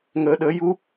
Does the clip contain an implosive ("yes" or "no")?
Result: yes